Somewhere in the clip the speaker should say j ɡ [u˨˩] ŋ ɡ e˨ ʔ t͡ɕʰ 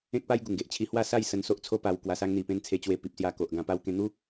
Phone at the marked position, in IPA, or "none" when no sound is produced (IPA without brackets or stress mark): u˨˩